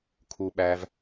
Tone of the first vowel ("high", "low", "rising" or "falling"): low